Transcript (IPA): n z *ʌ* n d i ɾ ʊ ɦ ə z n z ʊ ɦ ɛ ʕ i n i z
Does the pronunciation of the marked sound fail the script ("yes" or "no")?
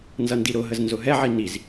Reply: no